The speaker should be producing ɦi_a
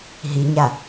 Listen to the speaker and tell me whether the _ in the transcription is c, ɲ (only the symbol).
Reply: ɲ